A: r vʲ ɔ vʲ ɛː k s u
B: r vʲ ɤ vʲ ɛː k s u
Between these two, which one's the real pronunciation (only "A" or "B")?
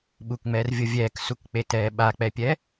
B